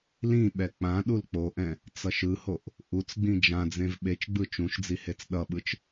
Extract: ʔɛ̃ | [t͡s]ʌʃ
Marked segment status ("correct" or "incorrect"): correct